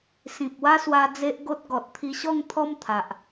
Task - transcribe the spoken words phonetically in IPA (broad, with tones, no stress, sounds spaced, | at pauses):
s ĩ˨ p̚ w a˦ s w a˧ d͡z e˦ ʔ ɡ o˦ t̚ ɡ ɔ˨ t̚ t̪ʰ i˧ ɕ ɔ˥˧ ŋ t̪ʰ ɔ˦ m t̪ʰ a˨ ʔ